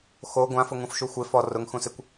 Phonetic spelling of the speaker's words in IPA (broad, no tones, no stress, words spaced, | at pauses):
xo ɡʷãfʊ ŋũfʃuxʷɪ fɔ rʊŋ xũsɪkʷ